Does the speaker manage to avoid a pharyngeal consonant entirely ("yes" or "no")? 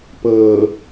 yes